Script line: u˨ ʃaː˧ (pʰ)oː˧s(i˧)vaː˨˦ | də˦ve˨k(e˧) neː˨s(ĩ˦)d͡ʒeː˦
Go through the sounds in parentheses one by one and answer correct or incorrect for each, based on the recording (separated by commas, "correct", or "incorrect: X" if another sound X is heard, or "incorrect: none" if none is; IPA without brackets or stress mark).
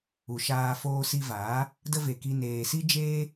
incorrect: f, correct, incorrect: i˧, incorrect: i˦